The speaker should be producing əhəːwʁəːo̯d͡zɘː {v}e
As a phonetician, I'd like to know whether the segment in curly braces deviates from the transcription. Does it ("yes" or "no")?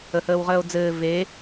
no